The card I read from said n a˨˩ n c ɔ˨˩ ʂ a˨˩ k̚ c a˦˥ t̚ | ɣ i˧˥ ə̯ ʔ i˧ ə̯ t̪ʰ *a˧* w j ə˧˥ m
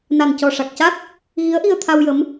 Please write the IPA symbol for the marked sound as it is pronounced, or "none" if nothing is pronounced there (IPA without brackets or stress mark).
a˧